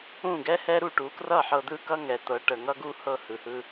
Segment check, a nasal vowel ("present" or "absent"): present